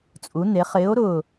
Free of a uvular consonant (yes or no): no